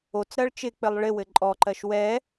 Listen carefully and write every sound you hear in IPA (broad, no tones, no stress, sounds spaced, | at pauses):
o t͡s ɾ ɜ ɭ t͡ʃ ɪ k͡p ɘ lˠ ɭ ɪ w ɘ ǃʼ ɔ ǃ ɜ ʃ w ɛ